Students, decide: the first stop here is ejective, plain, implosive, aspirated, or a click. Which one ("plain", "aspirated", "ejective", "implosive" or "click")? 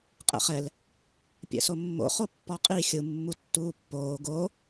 ejective